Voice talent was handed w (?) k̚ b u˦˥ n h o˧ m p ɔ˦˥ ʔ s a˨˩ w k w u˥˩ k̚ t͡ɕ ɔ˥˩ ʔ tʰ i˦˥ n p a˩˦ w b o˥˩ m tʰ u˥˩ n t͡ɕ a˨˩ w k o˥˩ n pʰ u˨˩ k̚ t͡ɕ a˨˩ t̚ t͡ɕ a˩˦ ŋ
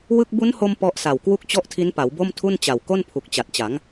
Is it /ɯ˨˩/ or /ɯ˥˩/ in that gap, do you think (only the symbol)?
ɯ˥˩